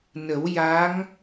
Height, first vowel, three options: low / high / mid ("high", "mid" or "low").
mid